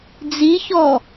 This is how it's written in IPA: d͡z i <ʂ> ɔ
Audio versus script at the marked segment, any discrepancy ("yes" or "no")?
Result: yes